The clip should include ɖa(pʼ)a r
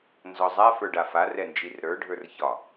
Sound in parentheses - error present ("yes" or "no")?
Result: yes